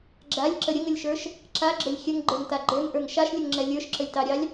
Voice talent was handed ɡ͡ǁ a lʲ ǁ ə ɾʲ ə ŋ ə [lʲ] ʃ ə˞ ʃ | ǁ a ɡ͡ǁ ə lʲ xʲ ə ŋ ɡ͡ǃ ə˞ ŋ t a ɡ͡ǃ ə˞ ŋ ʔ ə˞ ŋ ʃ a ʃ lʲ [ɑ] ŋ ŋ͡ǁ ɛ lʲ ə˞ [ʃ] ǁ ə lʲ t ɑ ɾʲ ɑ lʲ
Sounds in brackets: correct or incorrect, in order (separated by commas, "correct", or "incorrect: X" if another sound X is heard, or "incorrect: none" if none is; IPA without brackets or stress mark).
correct, incorrect: ə, correct